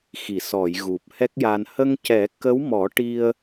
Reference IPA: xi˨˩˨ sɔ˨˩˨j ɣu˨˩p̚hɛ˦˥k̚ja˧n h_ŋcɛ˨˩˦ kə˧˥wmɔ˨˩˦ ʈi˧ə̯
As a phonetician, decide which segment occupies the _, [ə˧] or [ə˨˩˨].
ə˧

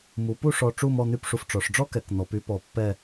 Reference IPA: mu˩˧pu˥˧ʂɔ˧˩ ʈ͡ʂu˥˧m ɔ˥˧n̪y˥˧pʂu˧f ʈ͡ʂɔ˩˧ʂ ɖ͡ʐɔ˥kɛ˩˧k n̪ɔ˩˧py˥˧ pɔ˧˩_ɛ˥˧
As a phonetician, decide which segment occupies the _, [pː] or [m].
pː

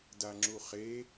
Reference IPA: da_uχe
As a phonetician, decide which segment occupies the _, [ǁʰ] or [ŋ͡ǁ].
ŋ͡ǁ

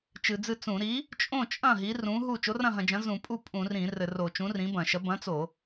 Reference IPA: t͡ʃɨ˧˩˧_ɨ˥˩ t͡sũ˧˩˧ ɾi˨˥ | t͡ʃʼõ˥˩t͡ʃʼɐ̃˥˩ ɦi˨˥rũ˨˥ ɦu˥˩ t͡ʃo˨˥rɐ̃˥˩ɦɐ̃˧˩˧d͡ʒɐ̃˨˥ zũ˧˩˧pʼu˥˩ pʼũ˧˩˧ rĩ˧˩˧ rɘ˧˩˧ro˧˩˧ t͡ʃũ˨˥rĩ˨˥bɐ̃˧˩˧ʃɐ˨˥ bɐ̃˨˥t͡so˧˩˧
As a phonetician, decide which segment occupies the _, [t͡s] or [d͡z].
d͡z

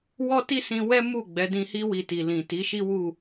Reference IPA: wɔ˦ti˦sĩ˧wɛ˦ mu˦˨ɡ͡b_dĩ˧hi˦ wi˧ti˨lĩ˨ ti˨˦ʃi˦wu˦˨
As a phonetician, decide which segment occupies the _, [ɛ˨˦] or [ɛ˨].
ɛ˨˦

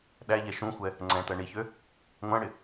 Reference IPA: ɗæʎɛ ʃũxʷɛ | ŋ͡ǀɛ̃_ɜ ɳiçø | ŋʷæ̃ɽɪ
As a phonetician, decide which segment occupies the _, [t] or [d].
t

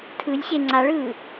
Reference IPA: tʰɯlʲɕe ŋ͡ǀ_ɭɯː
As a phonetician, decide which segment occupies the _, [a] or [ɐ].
a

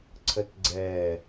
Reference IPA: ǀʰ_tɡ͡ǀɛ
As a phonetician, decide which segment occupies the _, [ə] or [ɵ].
ə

